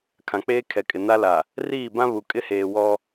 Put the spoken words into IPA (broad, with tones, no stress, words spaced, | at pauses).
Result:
kʰã˨k͡peː˦ kʰɛ˨kʼɪ˨na˦la˨ | riː˦˨bã˦ βu˨ kʼɪ˦heː˨ wɔ˦